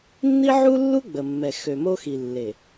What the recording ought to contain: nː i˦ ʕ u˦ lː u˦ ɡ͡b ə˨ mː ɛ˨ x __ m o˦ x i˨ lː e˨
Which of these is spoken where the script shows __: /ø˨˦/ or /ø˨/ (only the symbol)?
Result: ø˨